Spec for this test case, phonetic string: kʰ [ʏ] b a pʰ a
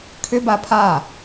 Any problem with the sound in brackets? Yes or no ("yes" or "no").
no